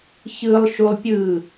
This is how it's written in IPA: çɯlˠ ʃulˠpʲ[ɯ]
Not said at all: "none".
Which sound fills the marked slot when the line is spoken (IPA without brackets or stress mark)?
ɯ